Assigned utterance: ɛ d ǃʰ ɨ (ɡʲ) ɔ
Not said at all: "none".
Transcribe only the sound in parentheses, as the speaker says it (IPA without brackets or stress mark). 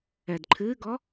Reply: ɡ